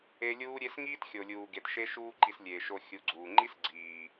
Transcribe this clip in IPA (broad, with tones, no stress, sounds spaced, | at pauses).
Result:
e˧ lʲ uː˦ ɾʲ e˦ s ŋ iː˦ t xʲ o˨ lʲ uː˨ ɡ e˨ t ʃ e˦ ʃ uː˦ ǃ i˧ s lʲ eː˨ ʃ o˧ xʲ u˨˦ ɡ͡ǀ uː˨ ŋ͡ǃ i˦ s ɡ͡ǀ iː˨